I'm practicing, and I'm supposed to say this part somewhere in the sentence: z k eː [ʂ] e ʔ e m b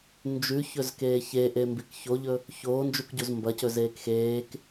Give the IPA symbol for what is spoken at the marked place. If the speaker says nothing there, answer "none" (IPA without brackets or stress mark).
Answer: ç